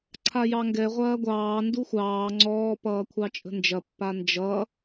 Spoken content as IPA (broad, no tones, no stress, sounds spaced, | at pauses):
ǀʰ a j ɑ ŋ ɡ ɛ ʁʷ ɐː ɡʷ ɑː n d u xʷ ɑː ŋ͡ǀ ɔː p ʌː kʷʰ ɑ t͡ʃʼ ə̤ n d͡ʒ ɐ pː a n d͡ʒ ʌ